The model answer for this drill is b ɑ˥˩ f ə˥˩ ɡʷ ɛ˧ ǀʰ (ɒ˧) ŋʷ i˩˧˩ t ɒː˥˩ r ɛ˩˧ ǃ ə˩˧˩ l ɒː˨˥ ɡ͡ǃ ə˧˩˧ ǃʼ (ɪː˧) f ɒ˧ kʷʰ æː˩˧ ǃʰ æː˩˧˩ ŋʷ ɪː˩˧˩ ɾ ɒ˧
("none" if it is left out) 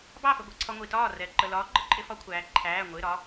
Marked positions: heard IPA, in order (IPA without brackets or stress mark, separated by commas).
ɒ˧, ɪ˧